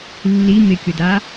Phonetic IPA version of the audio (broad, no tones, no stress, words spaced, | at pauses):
lːi mɪkʲʊda